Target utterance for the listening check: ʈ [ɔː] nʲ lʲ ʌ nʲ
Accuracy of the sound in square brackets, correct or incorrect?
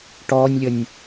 correct